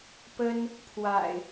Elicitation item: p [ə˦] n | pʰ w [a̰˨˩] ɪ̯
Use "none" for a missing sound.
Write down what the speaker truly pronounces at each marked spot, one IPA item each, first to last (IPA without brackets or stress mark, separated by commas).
ə˦, a̰˨˩